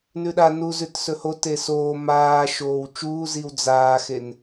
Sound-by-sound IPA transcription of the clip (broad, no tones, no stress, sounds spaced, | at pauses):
n ʉ ɗ a n u z ʉ t s ɵ h o t e s oː m aː ʃ oː w t͡ʃ uː z i w d͡z aː x e n